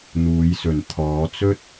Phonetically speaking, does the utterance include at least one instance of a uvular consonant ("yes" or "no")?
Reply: no